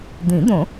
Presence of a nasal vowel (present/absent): present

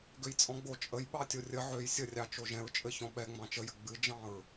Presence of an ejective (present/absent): present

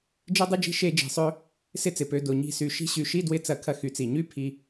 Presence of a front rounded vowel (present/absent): present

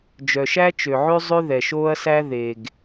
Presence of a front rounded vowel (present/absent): present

